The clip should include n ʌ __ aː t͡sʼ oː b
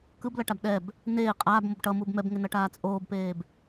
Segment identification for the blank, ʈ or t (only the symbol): ʈ